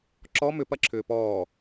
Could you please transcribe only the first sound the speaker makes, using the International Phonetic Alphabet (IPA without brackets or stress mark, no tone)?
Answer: ǁ